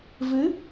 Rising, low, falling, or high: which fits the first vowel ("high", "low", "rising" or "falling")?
rising